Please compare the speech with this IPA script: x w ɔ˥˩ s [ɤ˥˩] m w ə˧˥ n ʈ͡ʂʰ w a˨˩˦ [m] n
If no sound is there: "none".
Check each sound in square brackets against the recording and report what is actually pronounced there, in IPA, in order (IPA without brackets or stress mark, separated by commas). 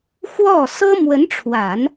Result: ɤ˥, none